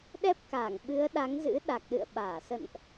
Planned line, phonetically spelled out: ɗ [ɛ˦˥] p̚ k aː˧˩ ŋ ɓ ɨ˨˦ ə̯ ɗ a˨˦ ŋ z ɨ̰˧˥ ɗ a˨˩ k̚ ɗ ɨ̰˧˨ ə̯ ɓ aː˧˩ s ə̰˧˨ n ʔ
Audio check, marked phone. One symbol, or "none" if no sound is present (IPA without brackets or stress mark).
ɛ˦˥